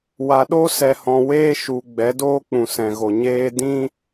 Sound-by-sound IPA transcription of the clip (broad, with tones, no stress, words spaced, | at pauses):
wa˨ɗo˦sɛ˨hɔ̃˨ weː˦ʃu˨ ɡ͡bɛ˨˦doː˦k͡pũ˨ sɛ̃˨ɣo˨ɲeː˦ dĩ˦